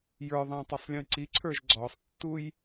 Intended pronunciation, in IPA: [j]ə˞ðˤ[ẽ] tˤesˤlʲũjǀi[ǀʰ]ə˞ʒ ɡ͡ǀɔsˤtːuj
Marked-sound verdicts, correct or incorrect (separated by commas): correct, correct, correct